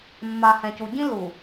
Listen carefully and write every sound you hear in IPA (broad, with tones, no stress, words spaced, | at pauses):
mːa˨hɛ̃˨cu˨ ɟĩ˦ lu˨